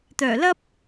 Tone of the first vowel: low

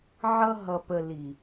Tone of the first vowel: high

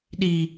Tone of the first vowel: high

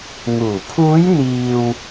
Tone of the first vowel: low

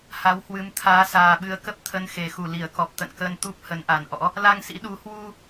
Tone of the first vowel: rising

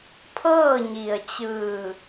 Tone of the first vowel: falling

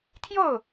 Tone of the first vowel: falling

